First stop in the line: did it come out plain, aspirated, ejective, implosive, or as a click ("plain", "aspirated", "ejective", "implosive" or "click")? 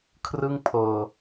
aspirated